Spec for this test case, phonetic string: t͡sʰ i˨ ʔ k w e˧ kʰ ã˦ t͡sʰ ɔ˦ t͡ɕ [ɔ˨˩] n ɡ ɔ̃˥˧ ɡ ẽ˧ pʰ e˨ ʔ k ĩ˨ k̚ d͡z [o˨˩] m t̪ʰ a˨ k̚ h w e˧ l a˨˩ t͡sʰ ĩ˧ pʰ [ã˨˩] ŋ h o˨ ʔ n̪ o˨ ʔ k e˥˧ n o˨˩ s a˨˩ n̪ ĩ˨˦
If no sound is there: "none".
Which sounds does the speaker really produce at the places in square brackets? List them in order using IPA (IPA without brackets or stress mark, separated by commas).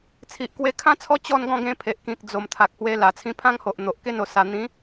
ɔ˥˧, o˨˩, ã˦